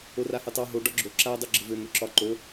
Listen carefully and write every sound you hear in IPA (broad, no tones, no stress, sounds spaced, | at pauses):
o r a h ø tˤ ɑ ɦ o ɖ ɒ ɡ͡ǁ o ǁ a dˤ o ɡ͡ǁ ə v ø n̪ ø ǁ ɒ ǃ o